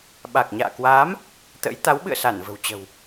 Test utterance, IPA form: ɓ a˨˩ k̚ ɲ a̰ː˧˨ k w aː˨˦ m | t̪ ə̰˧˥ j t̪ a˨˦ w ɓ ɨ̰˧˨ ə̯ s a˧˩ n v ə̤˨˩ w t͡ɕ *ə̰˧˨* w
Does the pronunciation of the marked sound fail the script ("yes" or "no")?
yes